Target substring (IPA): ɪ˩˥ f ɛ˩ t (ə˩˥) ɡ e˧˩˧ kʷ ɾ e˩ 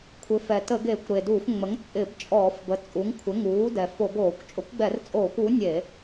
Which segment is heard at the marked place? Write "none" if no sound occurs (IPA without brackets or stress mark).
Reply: ə˧˩˧